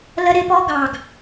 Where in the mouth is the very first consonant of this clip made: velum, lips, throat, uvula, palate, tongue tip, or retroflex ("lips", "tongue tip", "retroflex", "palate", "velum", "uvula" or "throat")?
tongue tip